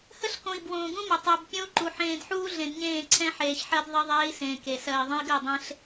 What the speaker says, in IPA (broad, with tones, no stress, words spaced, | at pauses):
hə˦ɬkõ˨i̯ bwõː˨ɡũ˦mə˨ tˤɛ˨b pʲõ˦u̯ǃu˨ ħẽː˨dħuː˦ɮẽ˨d ɲẽː˦˨ǀʰɛ̃˦ ħeː˨çħɜ˦d ðˤɜ˦ðˤeː˦i̯sẽː˨ ke˨ sɜ˨i̯ ðˤə̃˦i̯ɡɜ˦˨dˤẽ˦ɬ